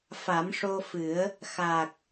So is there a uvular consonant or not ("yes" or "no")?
no